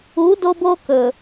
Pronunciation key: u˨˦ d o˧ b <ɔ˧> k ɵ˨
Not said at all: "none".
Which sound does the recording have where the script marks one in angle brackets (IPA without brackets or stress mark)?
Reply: o˧